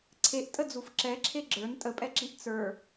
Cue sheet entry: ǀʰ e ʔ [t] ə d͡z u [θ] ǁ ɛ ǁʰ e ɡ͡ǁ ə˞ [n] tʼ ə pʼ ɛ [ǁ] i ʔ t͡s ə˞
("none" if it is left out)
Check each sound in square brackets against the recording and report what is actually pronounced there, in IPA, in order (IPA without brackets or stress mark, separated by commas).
tʼ, f, n, ǁ